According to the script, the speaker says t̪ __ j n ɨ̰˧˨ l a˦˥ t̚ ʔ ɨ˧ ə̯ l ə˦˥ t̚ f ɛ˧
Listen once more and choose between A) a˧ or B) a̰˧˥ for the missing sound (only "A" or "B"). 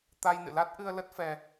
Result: A